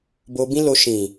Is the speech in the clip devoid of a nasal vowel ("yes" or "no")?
no